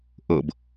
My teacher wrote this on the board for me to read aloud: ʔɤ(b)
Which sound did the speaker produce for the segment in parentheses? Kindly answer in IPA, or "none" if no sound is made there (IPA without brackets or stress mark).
b